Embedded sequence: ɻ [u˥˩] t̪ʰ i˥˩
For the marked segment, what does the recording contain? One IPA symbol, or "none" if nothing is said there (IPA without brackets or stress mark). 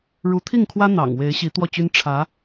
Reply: u˧˥